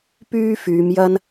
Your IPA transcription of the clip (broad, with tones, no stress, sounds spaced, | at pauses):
p yː˥ f yː˨˧ m j ɐ˥ n